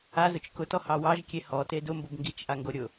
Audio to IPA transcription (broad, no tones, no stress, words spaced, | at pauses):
azʊt͡ʃ kʊtɔhɑ wɑʒkʲe hɔte dʊmbob ŋɡit͡ʃʔaŋɡoɾʲʊ